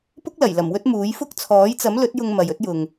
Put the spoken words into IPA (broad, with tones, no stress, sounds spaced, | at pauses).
p ʊ˥ k̚ l ɐ˨˩ j l ɐ˨˩ m w ɵ˥ t̚ m uː˨˥ j f ʊ˥ k̚ t͡sʰ ɔː˨˥ j t͡s ɐ˨˥ m l ɵ˨˥ t̚ j ʊ˧ ŋ m ɐ˨ j ɵ˥ t̚ j ʊ˨ ŋ